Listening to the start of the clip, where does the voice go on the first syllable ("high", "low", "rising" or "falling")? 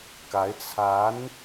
rising